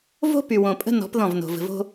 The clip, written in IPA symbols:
v o̤˦ p y˨ w õ˨ pʼ ə̤˦ n ɔ̤˨˦ p ð ɔ̃˦˨ v n o̤˨ v ə̤˨ v o̤˦

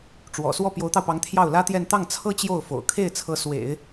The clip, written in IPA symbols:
ʈ͡ʂ w ɔ̰˨˩ s w ɔ˥˩ p j o˧˥ ʊ̯ t̪ ɑ˧ ʊ̯ p ɑ˧˥ ŋ t̪ʰ j ɑ˥˩ ʊ̯ l ä˥ t̪ j ɛ˥˧ n t̪ ɑ˥˩ ŋ t͡sʰ ɤ˥ t͡ɕ j o˥˩ ʊ̯ f o̰˨˩ ʊ̯ kʰ e˥˩ ɪ̯ t͡sʰ ɤ˧˥ s w ḛ˨˩˦ ɪ̯

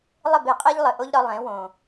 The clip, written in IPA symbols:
lˠ ɘ˦˨ b e˨ qʼ e˦ ʎ lˠ ɘ˨ ʔ o˦ ʎ ɾ ɒ˧ lˠ ẽ˨˦ w õ˨

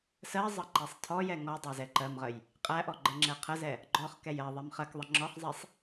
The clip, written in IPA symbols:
s ɜ zˤ ʌ ǃ ɛ sˤ tʰ ɔ j ɛ ŋ ɔ dˤ æ z ɛ ǃ ɜ m ʁ ə j | qʼ æ ʔ ɔ ɡ͡ǃ ə ŋ͡ǁ ɛ qʰ ə z ɛ | ɡ͡ǃ ɔ χ k ɛ j ɜ ðˤ ɛ m χ ɜ k ðˤ ə ŋ͡ǁ ɔ χ zˤ ɛ sˤ

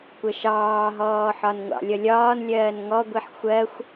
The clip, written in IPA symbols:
kʷ ə ʃ ɑː ɦ ɔː ħ ɒ n ŋʷ ɑ̰ lʲ ʌ lʲ ɒː n lʲ ɜː n ŋ ɔ ɡʷ i ħ xʷ ɜ xʷ

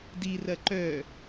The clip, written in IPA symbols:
d i r ɐ ǃ œ

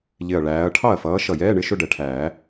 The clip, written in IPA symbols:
ʎ ɪ˧˩ ɐ̯ ɭ æː˨˥ ɐ̯ ʈʰ ɑ˥˩ ɐ̯ f ʌː˨˥ ʃ ʌ˥˩ j ɛː˧˥˧ ɳ ɪ˧˥˧ ʃ ʊ˥˧ ɖ ɛ˨˩˦ ʈʰ æː˨˩˦

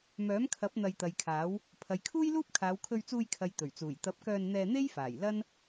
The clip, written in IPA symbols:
m œː˨˥ m kʰ ɐ˨˥ p̚ n̪ ɐ˧ j t̪ ɐ˨ j kʰ aː˨˥ w | pʰ ɐ˨ j kʰ uː˥ j l uː˥ p̚ kʰ aː˨˧ w kʰ ɵ˧ ɥ t͡s uː˧ j kʰ ɐ˨ j t̪ ɵ˨˩ ɥ t͡s uː˨˩ j t̪ ɐ˨˥ p̚ k œː˧ n n̪ ɛː˧ n̪ e˥ j f aː˨˩ j l ɐ˥ n

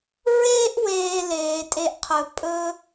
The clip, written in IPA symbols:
ɹ eː˥ ʔ w eː˨ l eː˩ tʼ e˨ ʔ qʰ ɵ˩ pʼ ɵ˥

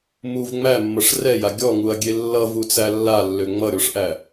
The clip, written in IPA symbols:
m u v ŋ͡m æ mː ʌ ʂ r ɛ j a ɡʲ ɔ ŋ u ɐ̯ ɡʲ e lː ʌ v u t͡s æ lː a lː ø ŋ͡m ʌ ɾʲ ɔ ʂ ʔ æ

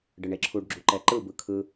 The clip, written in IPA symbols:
ɖ ɯ ɳ e ǁʰ u ɖ ɡ͡ǁ u ǃ ɛ ǃ ɯ b ɯ kʰ ɯ

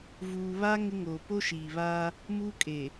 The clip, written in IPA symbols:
v uː˨ β a˦ ŋ ɪ˦ ŋ oː˨ p o˦ ʃ iː˨ β aː˦ | m uː˦ kʼ e˨

